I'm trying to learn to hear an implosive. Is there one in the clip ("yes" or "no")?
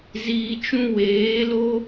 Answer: no